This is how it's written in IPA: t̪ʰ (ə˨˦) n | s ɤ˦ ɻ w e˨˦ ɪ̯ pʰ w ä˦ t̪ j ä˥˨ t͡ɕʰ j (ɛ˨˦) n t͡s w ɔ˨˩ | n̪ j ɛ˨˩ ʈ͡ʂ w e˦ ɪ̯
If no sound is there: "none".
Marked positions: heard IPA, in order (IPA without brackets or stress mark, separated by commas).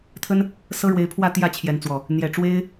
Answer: ə˦, ɛ˨˦